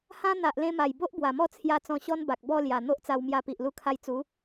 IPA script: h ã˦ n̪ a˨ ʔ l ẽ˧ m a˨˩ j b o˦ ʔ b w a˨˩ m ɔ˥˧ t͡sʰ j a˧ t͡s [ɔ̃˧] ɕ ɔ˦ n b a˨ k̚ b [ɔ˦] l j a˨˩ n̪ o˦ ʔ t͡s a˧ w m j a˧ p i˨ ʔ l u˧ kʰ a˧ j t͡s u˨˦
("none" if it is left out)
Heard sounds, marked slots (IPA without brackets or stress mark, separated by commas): ɔ̃˧, ɔ˥˧